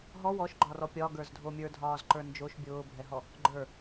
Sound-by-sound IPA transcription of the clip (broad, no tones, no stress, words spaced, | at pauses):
ɦɔ wɔʃɡ͡ǃɒrɔ pʲɒɡə˞zdʱo mʲə˞dʱɒːzǃə˞ nd͡ʒoʃ bʲʊːbʱɛɦɔ | ɡ͡ǃə˞